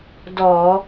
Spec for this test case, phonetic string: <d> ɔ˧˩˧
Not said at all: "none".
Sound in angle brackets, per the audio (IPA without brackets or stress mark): d